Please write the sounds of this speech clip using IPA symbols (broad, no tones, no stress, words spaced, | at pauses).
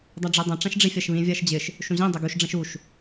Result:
dˤaɖ͡ʐidˤɐ̃ ʈ͡ʂãʃɖ͡ʐifʲaʃβĩ vʲaʃd͡ʑɪʃ | ʃũʑĩ dˤɪɡuʃ ɖ͡ʐɐ̃ʃuʃ